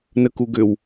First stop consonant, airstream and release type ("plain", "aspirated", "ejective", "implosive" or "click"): plain